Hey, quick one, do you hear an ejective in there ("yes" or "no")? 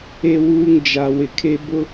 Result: no